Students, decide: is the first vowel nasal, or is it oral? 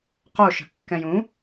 oral